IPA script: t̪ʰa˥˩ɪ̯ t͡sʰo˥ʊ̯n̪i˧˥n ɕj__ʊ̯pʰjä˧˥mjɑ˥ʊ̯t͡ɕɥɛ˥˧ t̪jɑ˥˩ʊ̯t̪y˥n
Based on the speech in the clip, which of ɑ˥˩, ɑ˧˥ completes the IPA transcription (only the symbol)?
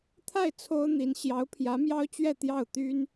ɑ˧˥